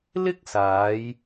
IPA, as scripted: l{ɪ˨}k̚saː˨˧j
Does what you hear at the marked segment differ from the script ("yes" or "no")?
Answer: yes